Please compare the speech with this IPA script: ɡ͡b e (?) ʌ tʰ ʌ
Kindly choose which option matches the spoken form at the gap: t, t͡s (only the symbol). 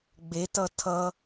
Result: t